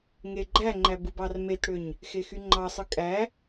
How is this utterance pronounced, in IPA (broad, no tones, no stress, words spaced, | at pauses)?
ŋeɡ͡ǃæŋ͡ǃæ bɯbɑrmetɽøɲ | xexyŋ͡ǃɑsˤɯ kʼæ